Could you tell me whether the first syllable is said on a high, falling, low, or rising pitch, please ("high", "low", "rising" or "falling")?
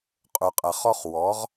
low